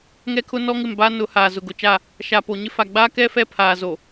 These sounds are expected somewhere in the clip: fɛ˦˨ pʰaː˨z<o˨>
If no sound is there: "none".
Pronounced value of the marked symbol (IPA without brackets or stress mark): o˨